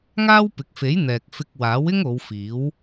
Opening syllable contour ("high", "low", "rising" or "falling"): high